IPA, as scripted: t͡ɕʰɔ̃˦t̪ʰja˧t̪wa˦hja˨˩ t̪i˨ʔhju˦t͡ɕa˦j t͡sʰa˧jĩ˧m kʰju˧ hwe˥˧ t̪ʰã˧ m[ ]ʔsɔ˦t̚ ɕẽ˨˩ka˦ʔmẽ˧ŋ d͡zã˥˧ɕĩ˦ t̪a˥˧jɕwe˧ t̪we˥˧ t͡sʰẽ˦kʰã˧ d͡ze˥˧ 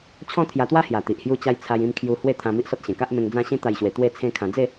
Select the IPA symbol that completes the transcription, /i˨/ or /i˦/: i˦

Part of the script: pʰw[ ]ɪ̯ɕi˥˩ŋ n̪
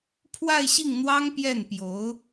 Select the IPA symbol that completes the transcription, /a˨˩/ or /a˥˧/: a˥˧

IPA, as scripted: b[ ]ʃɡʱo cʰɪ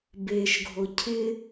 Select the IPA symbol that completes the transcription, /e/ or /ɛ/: e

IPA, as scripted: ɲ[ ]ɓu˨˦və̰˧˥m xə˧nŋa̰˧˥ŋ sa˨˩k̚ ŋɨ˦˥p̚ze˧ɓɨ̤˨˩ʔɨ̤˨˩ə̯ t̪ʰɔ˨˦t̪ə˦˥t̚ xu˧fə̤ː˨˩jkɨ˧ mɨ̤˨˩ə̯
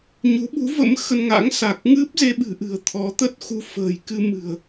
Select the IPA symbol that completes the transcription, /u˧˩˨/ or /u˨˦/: u˨˦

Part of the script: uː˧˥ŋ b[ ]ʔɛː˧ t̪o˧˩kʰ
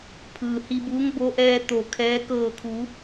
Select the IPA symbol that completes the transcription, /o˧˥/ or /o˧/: o˧˥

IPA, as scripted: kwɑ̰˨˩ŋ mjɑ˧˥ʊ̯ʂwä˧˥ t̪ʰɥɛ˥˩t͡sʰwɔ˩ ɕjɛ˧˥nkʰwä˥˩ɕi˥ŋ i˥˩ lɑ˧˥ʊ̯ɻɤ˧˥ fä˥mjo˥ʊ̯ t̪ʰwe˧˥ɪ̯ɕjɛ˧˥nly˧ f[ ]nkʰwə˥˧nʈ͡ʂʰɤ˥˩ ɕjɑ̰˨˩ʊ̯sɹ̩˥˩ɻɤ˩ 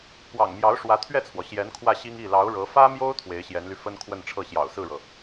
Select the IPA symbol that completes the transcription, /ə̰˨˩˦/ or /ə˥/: ə˥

